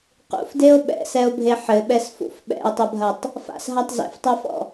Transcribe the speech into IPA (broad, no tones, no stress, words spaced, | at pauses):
qṵfdeo̯ ɓɛ̰sɛo̯bʱe ħɘɓɛsfṵf ɓɛ̰e̯tˤɐbʱɐtˤ | fa̰sɦatˤ zɛ̰ftˤafɔ̰